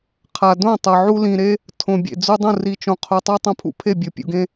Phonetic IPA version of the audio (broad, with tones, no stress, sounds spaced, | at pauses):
qʰ a˨ d õ˥˩ tˤ ɤ˨ ʕ u˦ l ĩ˨ ɾ e˦ | tʰ õ˨ bʲ ḛ˨ d͡z u˦ dˤ ũ˥˩ r i˨ t͡ʃ õ˨ qʰ o˨ tˤ o˦ tˤ õ˦ pʰ ṵ˦ pʰ e˥˩ bʲ ɤ˨ pʲ ṵ˨ ɡ ẽ˦